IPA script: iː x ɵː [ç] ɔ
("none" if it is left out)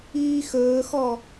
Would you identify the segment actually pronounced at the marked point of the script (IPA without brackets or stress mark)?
x